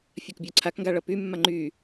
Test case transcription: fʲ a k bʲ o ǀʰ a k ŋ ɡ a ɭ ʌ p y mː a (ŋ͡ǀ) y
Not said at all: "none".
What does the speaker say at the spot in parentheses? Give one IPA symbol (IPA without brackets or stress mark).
ŋ͡ǃ